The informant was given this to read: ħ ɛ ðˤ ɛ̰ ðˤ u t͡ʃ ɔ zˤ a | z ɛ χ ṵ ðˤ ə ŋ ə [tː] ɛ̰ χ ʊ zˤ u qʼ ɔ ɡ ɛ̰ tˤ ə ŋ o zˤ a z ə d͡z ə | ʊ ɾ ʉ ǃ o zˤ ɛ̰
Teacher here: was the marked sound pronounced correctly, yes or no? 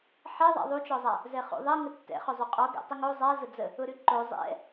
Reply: yes